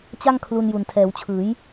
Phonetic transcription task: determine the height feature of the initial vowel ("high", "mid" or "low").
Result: low